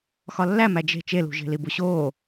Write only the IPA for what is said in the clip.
x ɒ lː æ m æ d͡ʒ e̤ t͡ʃ e l ṳ ʒ e̤ l i b u ɕ oː

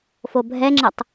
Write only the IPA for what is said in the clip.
f o bʱ ɛ ŋ͡ǁ ə tˤ

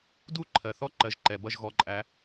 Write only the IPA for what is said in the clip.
d u˥˨ ǃʰ ɜ˩ θ ɔ˥˨ ǃ ɜ˨˦ ʒ ǃ ɛ˩ b ʌ˥˨ ʒ ɣ ɔ˨˦ ǃʼ æ˨˦

